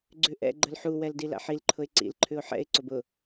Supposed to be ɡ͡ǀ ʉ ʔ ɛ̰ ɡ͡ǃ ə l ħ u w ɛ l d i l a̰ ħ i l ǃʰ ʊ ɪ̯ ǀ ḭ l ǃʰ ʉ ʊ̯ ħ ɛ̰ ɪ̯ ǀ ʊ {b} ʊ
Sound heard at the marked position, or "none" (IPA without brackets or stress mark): b